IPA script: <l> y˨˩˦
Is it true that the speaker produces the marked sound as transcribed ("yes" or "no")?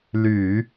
yes